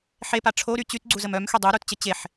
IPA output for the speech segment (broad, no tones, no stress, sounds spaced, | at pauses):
ħ e p a ʈ͡ʂʰ o ɾ y t͡ɕ y t ɡ͡ǀ u z ə m œ m x y dˤ u ɾ u t t͡ɕ ə t͡ɕ e ħ